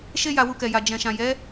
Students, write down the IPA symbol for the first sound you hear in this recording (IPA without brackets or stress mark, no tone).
ʃ